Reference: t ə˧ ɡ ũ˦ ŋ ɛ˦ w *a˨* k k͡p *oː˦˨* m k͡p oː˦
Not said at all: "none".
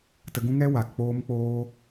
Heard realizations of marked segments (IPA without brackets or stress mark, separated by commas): a˨, oː˦